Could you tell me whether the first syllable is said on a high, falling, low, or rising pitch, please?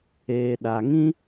low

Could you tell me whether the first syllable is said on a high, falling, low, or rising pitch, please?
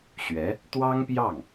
rising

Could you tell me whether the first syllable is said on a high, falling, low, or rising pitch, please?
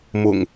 low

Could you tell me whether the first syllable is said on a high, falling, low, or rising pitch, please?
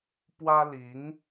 high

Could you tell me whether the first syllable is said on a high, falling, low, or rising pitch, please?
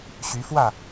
rising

